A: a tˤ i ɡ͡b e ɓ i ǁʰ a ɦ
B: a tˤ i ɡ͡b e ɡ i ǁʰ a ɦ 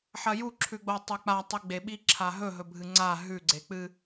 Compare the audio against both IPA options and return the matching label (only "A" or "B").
A